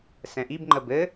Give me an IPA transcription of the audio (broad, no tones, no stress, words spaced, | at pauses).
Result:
sɛ̃ʔibŋ͡ǃə bɘ